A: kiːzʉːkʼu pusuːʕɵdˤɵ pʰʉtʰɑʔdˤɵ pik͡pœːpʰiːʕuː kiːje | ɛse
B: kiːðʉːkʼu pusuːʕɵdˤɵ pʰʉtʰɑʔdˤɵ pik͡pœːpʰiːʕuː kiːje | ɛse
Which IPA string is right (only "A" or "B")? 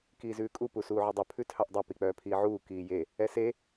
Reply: A